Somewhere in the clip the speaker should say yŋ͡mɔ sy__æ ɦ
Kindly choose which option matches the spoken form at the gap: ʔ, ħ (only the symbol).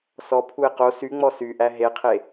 ʔ